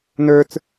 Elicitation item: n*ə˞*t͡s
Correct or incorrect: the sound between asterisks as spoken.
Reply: correct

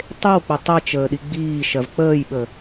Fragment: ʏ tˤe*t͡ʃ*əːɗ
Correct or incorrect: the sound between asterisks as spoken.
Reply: correct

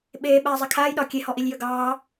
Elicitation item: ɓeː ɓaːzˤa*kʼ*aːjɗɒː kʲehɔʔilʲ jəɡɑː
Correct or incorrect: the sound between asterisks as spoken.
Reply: incorrect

